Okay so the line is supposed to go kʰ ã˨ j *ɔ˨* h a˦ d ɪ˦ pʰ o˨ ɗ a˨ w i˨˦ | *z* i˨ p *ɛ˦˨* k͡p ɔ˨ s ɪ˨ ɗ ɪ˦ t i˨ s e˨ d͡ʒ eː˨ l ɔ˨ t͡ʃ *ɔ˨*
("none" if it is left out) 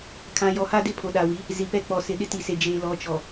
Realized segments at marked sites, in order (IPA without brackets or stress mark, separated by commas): ɔ˨, z, ɛ˦˨, ɔ˨